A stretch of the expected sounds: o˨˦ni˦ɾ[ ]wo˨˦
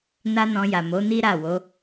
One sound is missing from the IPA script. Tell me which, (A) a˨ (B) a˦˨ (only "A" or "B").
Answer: B